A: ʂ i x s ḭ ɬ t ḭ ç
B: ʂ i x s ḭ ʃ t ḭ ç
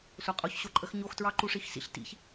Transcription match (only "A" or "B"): A